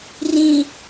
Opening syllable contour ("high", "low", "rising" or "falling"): low